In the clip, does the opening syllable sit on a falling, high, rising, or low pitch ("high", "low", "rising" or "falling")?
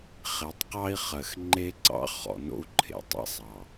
low